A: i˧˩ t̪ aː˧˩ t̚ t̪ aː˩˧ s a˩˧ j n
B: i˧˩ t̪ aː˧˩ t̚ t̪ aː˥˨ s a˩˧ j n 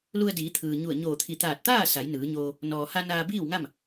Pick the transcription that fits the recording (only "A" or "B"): B